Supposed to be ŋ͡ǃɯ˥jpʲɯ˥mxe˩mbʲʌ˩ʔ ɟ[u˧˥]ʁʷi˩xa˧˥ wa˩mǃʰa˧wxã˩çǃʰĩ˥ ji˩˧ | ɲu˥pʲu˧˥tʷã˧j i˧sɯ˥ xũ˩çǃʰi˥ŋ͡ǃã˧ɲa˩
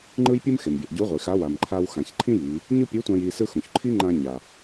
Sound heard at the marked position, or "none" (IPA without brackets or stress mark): u˧˥